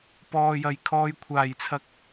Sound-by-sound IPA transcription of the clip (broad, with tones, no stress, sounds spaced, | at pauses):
p ɔː˨ j ɐ˨˩ j kʰ ɔː˧ j kʷʰ aː˨˩ j t͡sʰ ɐ˧ k̚